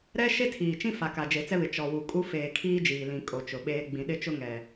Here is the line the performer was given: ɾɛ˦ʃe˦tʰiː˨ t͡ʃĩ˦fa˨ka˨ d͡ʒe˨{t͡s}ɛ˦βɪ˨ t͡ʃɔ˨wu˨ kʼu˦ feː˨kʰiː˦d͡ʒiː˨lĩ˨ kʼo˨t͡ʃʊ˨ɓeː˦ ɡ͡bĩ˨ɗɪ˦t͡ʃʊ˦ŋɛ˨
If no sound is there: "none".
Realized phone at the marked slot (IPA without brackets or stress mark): t͡s